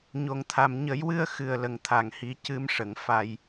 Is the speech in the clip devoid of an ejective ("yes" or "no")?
yes